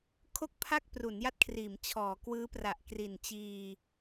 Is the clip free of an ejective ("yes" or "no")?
yes